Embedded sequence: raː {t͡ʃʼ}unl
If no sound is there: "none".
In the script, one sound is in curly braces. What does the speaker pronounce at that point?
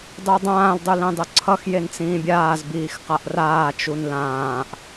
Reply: t͡ʃ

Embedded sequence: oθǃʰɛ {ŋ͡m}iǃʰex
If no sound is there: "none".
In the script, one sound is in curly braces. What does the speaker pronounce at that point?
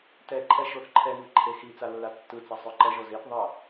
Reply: ŋ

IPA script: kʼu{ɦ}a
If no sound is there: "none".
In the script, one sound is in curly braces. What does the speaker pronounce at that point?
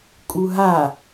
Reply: ɦ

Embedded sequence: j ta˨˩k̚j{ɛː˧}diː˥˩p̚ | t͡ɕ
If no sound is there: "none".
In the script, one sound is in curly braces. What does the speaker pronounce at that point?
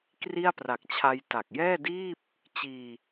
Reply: ɛː˥˩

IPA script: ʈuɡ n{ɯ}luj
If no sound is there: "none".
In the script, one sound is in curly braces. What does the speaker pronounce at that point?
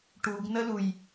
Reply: ə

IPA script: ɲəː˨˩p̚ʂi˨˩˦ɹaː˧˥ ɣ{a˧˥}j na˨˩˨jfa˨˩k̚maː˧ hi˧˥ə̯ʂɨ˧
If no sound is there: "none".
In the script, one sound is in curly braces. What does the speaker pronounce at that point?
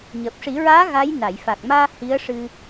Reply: a˧˥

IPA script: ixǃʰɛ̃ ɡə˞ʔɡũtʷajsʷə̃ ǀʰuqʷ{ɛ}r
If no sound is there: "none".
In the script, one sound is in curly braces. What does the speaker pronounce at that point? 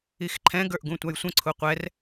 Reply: ɛ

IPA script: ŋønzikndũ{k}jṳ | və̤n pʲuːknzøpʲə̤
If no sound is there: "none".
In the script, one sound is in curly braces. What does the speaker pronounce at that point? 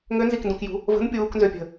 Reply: k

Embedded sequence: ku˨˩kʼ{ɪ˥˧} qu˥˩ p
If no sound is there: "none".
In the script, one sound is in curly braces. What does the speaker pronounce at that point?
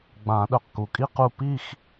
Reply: i˥˧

